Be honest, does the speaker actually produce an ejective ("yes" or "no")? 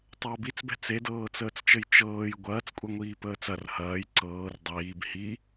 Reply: yes